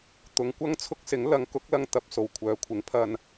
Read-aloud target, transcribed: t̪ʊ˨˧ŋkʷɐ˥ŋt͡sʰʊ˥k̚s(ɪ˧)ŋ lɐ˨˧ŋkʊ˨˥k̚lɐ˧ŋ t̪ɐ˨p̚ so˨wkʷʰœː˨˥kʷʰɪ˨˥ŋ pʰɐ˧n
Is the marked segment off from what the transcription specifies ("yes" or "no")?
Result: yes